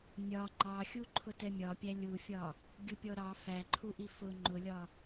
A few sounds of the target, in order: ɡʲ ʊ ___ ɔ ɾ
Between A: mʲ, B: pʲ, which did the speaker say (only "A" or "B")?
B